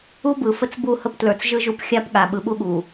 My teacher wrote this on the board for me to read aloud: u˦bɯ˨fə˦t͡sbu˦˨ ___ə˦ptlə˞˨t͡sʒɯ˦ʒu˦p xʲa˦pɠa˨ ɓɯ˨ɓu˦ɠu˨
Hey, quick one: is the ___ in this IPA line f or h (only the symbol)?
h